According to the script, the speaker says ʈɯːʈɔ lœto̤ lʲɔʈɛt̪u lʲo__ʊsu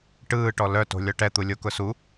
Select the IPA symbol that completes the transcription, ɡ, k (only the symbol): k